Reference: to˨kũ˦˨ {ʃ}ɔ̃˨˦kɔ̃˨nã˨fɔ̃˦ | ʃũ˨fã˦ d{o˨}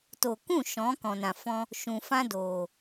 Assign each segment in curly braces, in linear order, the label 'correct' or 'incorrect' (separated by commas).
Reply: correct, incorrect